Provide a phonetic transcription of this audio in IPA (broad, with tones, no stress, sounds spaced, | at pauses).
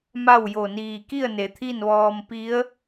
m a˥˨ w j o˧˩ n iː˧˩ k i˥˨ ə̯ n e˩˧ t̪ʰ i˥˨ n ʋ ɔː˧ m p i˧˥ ə̯